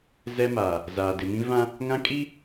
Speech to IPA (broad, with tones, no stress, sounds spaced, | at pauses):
z ɛ˦ m aː˨ | z aː˨ d ɪ˨ m ĩ˦ v ã˦ | ŋ ã˦ kʼ i˦